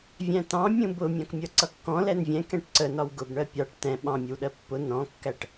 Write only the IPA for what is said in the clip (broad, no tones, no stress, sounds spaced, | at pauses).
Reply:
vʲ æ̃ t ɑ̃ mʲ ũ b ʊ mʲ ɑ̃ k mʲ ʌ ǀ ʌ kː ɔ̃ l ɛ n vʲ ɛ̃ k ɛ̃ ʈ ǀ ə n ɒ w ɡ ʊ b ɳ ɜ pʲ ɑ ʈ t ɛ̃ ɓ ɑ̃ mʲ ə w ɗ ɜ pː ʊ n ɔ̃ kː æ ʈ